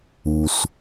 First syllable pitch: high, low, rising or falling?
low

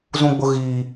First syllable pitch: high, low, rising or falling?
high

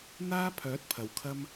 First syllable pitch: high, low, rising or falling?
high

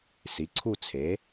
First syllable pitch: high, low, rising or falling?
rising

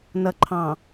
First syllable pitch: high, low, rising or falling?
low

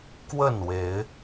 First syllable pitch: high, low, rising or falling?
falling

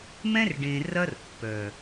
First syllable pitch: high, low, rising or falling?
high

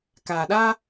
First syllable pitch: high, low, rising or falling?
low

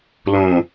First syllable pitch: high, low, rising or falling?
low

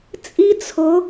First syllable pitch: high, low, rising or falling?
high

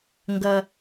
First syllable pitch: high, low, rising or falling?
high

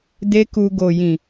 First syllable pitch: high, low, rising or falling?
high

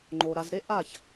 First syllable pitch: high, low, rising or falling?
low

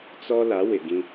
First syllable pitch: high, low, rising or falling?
high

